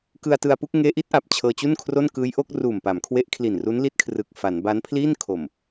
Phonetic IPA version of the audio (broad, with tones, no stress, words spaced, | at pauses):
kɯ˧a̯tɯ˧a̯pu˥˩k̚ ŋeː˦˥ʔi˦˥t̚ʔa˨˩p̚ t͡ɕʰɤː˧t͡ɕu˥˩nkʰro˥˩n kɯː˦˥jʔo˦˥k̚ ruː˨˩mpa˩˦mkʰwe˦˥ʔkʰli˨˩n ru˦˥nli˦˥t̚kʰrɯ˨˩k̚ fa˩˦n ba˦˥npʰliː˥˩n kʰo˨˩m